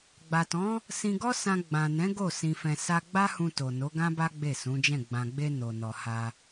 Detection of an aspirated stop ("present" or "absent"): absent